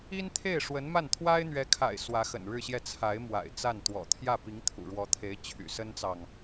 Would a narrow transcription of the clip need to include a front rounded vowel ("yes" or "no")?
yes